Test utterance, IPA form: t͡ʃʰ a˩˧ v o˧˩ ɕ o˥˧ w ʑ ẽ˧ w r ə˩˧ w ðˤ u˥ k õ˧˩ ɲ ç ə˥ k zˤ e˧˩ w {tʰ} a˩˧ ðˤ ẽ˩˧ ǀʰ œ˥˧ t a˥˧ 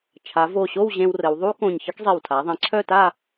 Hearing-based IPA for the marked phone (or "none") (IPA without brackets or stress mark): tʰ